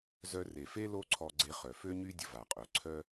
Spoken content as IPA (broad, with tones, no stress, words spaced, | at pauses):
zœ˧re˩fe˥ lo˥ǀʰɔ˧ɡ͡ǀe˧χœ˩ fø˥ɲy˥ dʲə˧va˩qʼœ˩ǀʰœ˥